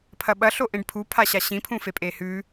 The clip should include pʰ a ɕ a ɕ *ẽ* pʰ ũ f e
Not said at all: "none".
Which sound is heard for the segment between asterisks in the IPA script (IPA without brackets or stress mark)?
ĩ